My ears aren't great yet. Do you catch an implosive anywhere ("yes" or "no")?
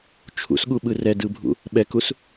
yes